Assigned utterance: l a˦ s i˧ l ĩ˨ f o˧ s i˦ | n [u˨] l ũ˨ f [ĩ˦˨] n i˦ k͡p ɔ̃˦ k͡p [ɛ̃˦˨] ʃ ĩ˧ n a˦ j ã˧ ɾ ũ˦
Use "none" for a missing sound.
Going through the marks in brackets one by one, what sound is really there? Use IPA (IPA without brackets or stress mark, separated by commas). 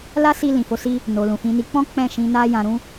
o˨, ĩ˨˦, ɛ̃˦˨